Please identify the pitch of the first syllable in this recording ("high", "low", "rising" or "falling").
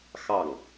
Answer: falling